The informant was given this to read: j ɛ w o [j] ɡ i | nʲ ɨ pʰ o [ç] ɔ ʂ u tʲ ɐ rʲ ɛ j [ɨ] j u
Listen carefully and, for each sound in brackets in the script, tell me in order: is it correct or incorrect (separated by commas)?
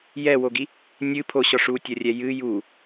incorrect, incorrect, correct